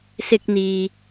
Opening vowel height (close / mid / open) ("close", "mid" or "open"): close